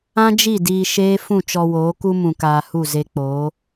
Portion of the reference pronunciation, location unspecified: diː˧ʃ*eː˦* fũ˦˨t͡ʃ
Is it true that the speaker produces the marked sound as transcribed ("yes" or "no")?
yes